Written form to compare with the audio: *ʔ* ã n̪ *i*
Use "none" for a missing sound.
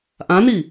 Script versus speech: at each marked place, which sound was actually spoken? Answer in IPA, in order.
ʔ, i

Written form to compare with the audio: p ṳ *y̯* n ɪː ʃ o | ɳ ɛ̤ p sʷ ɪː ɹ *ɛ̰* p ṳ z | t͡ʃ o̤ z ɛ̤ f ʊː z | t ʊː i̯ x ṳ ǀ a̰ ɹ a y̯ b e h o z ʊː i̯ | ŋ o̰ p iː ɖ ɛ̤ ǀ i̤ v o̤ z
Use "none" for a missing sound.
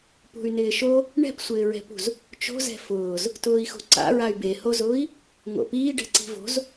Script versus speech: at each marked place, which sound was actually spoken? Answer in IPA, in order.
y̯, ɛ̤

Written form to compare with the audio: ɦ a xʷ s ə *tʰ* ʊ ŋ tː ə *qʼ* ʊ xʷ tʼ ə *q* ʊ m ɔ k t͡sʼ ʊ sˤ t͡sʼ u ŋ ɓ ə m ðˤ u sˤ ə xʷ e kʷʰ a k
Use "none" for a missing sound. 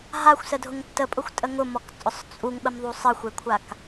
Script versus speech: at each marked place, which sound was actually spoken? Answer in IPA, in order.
dʱ, pʼ, ŋ

